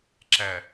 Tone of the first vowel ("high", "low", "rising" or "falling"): low